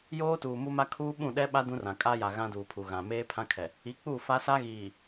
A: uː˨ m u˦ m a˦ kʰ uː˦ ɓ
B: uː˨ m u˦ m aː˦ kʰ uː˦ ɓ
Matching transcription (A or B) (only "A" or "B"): A